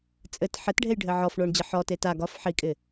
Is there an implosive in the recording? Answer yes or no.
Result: no